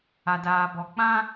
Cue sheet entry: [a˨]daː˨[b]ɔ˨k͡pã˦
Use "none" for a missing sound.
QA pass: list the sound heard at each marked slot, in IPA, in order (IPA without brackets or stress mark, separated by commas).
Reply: a˨, b